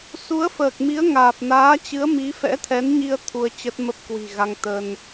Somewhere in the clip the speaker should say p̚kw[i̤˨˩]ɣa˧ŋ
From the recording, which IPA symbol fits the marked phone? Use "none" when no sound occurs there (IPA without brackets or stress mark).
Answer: i̤˨˩